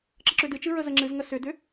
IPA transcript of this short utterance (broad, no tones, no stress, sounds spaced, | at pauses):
ǁ ə ǁ ʏ d ɨ t͡ʃ ɨ ɹ ə z ə ŋ͡ǁ ɨ z ŋ ə s ʏ d ʏ